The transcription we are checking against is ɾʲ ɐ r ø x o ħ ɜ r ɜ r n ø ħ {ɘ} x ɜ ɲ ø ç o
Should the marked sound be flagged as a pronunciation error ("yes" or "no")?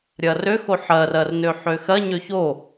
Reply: yes